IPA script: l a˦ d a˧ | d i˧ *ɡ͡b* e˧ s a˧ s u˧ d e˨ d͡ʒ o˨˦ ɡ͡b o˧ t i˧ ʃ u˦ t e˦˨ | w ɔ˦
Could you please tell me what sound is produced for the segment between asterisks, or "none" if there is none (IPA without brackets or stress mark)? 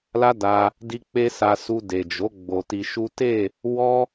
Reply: k͡p